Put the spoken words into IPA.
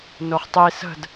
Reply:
n o χ tˤ i s ə̤ d

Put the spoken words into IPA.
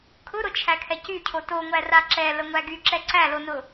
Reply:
kʰ ʊ ɾ ʊ t͡ʃʰ æ kʰ ɛ c y cʰ o t o ŋʷ æ r a ǁ ɛ l ə ŋʷ æ ɡ y ǁ ɛ ǀ æ l o n ʊ

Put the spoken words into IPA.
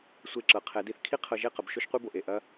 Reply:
sʷ e˧˩ ǁ ɤ˩˧ qʰ ɛ˩˧ d i˧ θ kʰ i˥ qʰ ɤ˧ ʒ e˥˧ q ə˩˧ b ʃ o˥ ʃ qʷ i˥ b o˧˩ ʔ e˧˩ ʔ ɐ˧

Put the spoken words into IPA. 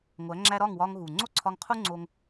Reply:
ŋʷ æ˨˦ ŋ͡ǁ æ˧ ɾ ɒ˦˨ ŋ w ɒ˧ ŋ ɣ u˨ ŋ͡ǀ o˦ ǀʰ ɒ˧ ŋ qʰ u˦ ŋ͡ǀ o˧ ŋ

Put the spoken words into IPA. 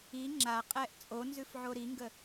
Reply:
i ŋ͡ǁ a qʼ ɛ ʔ t͡sʼ o n z ʉ f ʕ o ɾ i ŋ ɡ ə

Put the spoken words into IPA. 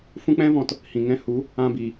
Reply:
f ũ˦ k͡p ɛ̃˦ v ɔ̃˧ t | h ĩ˨ ŋ ɛ̃˧ h u˨˦ | ã˧ b i˨

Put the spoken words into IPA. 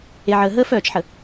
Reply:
e˨ ʕ əː˨ ɦ əː˦ f œː˨ t͡ʃ ħ ə˨

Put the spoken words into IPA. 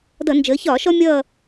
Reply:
d ʌ˧˩˧ n d͡ʒ əː˩˧ ç ɒː˧˩˧ ʃ ɔ˦ mʲ ʌː˦˨

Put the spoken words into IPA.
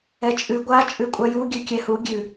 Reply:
ɛ t͡ʃʼ ʉ ɡʷ a t͡ʃʼ ʉ kʷʼ a j u ɡʲ ʉ kʲ ɛ h u ɡʲ ʉ

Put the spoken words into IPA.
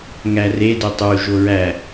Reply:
ŋ æ r e d o tˤ u ʒ o ɹ æ

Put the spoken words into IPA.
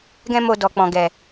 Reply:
ɡ ɛ̃˦ m o˧ d ɔ˨ k͡p ɔ̃˨ ɡ ɛ˨

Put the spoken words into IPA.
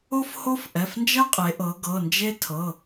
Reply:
o˥ f h o˥ f ʔ ɛ˩˧˩ f n d͡ʒ ɜ˥ qʼ e˩˧ ʔ ɤ˩˧ ɡ ɤ˩˧˩ n d͡ʒ e˥ tʰ ɤ˩˧˩

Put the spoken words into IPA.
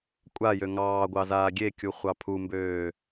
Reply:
kʷʼ a j ø ŋ ɑː ɡʷ ɑ z aː ɡʲ e kʲ u χʷ ɑ pʰ u m b øː

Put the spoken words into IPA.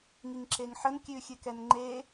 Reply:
ŋ i ŋ ǁ e ŋ ħ ə n kʲ ʉ xʲ ɨ k ɛ n ŋ͡ǃ e

